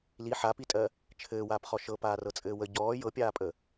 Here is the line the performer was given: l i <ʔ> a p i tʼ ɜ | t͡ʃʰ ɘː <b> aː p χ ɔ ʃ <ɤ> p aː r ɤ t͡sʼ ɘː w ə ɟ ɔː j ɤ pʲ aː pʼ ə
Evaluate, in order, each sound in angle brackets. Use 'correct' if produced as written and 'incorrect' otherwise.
incorrect: ħ, incorrect: w, correct

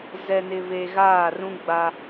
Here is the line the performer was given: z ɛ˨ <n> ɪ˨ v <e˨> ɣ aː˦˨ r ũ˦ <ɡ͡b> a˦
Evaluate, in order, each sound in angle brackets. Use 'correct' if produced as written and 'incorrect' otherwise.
correct, correct, correct

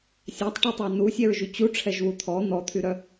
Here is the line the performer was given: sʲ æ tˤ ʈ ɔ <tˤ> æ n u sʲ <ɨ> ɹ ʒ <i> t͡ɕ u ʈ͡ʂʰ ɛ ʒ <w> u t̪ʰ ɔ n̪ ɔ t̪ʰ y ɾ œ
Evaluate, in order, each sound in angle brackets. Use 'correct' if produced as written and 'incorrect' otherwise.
correct, incorrect: ɛ, incorrect: y, correct

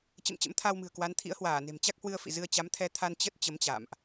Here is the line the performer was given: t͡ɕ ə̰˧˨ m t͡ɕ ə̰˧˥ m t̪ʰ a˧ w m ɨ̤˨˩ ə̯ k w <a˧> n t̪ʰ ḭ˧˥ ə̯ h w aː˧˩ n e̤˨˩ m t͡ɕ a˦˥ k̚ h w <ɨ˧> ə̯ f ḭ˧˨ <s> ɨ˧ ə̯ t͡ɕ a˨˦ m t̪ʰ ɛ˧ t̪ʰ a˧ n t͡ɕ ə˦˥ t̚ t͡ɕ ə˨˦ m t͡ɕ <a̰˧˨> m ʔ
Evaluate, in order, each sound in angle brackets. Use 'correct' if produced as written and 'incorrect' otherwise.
incorrect: a˨˦, correct, incorrect: z, correct

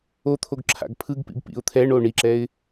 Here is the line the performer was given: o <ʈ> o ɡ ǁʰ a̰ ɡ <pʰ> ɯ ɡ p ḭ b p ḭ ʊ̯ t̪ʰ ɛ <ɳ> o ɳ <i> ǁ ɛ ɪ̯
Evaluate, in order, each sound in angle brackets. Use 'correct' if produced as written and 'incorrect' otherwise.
incorrect: t̪ʰ, correct, correct, correct

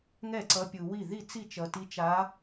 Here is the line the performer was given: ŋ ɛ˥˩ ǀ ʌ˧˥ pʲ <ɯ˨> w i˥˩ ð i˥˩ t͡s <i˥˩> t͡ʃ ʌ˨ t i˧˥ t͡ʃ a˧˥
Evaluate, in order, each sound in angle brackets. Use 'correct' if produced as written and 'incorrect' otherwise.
correct, correct

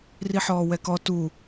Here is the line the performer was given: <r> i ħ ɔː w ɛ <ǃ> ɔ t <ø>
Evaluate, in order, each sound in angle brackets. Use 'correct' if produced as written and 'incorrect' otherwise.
correct, incorrect: k, incorrect: u

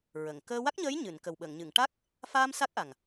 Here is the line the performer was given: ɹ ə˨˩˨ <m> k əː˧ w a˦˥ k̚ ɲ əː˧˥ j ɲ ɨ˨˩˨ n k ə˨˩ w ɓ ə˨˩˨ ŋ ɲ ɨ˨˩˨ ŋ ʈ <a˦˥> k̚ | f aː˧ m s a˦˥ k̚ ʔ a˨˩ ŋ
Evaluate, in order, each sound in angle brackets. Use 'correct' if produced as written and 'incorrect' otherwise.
incorrect: ŋ, correct

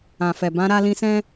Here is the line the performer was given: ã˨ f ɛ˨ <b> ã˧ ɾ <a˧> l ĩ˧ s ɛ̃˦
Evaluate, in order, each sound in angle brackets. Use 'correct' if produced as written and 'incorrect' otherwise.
correct, correct

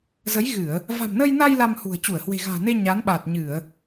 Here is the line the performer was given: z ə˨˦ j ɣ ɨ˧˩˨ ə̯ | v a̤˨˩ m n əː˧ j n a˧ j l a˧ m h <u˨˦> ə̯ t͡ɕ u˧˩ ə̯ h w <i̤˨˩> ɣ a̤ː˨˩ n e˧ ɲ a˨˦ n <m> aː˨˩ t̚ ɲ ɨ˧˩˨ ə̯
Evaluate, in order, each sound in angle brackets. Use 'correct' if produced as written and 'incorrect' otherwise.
incorrect: ṳ˨˩, incorrect: e̤˨˩, incorrect: ɓ

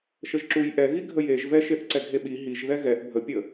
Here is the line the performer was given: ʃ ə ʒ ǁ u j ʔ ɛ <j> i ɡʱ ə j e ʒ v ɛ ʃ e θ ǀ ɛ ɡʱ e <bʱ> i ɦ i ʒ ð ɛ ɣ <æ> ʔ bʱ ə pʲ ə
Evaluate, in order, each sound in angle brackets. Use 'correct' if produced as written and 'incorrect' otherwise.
incorrect: ɣ, incorrect: ɓ, incorrect: ɛ

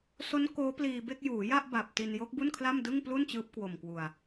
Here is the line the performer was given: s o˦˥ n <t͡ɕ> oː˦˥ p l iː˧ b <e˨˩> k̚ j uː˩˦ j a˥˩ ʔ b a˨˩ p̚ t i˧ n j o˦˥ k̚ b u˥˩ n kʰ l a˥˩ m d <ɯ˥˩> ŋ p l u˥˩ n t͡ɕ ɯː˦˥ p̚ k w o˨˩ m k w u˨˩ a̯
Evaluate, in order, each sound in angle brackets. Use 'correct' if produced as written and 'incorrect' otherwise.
incorrect: k, incorrect: e˥˩, correct

